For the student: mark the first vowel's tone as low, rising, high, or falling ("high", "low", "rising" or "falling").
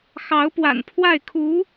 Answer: rising